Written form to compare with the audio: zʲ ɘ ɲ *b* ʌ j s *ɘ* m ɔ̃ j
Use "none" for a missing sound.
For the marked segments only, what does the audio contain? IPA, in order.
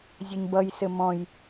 b, ɘ

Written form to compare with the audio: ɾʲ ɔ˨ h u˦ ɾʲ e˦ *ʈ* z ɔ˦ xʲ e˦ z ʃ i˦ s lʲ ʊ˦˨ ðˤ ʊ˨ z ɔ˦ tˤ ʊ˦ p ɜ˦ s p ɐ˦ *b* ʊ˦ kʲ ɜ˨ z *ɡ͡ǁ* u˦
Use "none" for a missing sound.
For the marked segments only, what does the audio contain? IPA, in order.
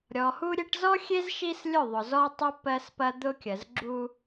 ʈ, d̪, ɡ͡ǁ

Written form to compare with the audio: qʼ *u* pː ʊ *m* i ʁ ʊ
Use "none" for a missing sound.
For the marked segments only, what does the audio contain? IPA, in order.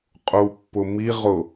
u, m

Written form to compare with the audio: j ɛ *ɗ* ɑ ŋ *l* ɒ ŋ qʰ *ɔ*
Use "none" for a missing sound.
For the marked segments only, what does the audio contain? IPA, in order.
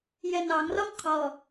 n, r, ɔ

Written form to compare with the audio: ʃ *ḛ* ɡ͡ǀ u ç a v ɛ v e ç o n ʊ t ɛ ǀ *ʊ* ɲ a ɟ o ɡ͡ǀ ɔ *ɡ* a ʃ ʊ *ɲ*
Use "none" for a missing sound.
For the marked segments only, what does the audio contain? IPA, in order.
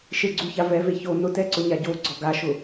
e, ʊ, ɡ, none

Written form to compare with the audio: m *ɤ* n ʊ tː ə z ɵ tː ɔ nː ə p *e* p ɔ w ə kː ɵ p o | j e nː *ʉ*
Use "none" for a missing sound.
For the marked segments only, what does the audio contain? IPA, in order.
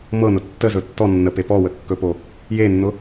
ɤ, e, ʊ

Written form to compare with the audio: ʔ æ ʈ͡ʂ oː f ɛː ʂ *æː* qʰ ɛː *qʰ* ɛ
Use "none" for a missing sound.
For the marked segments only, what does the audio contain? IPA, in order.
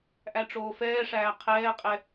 æː, qʼ

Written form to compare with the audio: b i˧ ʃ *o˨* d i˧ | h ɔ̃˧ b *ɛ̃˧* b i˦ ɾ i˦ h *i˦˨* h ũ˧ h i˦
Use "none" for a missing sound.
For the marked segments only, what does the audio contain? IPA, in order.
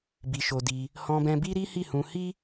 o˧, ɛ̃˧, i˦˨

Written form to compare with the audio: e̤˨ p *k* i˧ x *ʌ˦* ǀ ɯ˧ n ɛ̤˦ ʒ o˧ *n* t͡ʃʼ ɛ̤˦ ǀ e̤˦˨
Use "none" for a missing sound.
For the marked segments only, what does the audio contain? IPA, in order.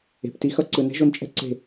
t, ʌ˦, n

